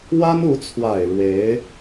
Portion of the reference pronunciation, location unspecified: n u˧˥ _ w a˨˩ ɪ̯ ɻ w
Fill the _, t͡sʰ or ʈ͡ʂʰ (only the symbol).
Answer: t͡sʰ